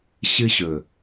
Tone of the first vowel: high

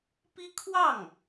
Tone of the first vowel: high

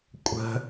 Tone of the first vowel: high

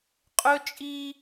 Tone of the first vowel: high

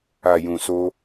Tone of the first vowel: low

